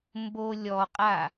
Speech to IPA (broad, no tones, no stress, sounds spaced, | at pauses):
m b o lʲ ɔ qʼ a